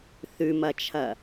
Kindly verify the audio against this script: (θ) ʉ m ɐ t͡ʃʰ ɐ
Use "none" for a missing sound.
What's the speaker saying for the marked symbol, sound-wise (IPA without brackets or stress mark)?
θ